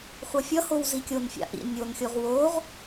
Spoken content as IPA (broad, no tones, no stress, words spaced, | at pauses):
χʷʌfʲʌhow zikʲonfʲa̰ ʔḭ nʲonxʲoʁ woʁ